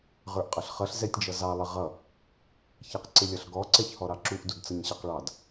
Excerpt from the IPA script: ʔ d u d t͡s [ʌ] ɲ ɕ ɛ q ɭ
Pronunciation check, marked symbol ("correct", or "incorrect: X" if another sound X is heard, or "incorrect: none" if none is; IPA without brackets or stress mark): correct